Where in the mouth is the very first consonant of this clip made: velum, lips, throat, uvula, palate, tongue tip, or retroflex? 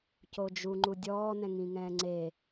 palate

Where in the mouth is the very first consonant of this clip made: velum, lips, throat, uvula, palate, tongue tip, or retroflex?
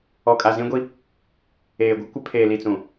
velum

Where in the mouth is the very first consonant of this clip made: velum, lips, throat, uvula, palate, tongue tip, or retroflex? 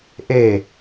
throat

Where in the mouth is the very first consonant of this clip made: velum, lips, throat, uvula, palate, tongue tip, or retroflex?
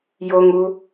palate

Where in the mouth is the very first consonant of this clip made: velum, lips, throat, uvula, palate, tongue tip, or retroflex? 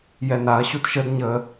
palate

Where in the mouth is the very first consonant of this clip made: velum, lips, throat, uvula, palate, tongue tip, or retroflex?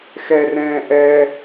velum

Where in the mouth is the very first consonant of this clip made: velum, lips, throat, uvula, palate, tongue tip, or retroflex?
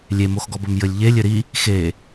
tongue tip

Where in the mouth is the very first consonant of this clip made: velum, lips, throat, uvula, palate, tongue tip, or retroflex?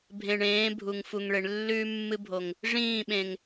lips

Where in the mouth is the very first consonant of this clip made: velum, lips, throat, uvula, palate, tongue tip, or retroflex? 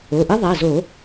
throat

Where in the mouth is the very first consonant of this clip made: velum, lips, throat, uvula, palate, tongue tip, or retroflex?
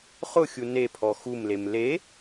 uvula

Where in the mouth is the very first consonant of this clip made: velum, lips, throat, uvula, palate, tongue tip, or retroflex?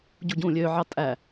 palate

